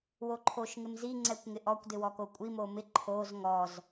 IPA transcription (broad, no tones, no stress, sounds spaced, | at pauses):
w o ǃʰ o ʃ ŋ ɪ m z i ŋ͡ǀ ɛ kʷ ŋ ɪ ʔ ɔ kʷ d ɪ w ɔ k o kʷʼ i m o m ɪ ǃʰ o z ŋ ɔ z